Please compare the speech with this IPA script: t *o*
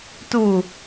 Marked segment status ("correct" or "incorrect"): incorrect